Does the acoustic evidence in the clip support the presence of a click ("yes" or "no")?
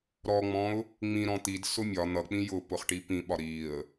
no